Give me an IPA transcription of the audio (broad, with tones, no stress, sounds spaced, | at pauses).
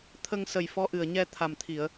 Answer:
t̪ʰ ə˧ ŋ s ə˨˩ j f ɔ˧˥ ʔ ɨ˨˩ ə̯ ɲ ɛ˧ t̪ʰ a˨˩ m t̪ʰ i˨˩˨ ə̯